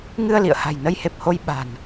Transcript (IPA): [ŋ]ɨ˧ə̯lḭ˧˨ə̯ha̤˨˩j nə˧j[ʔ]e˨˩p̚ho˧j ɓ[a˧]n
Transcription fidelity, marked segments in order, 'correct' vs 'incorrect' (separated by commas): correct, incorrect, incorrect